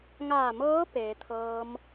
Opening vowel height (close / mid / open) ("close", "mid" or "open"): open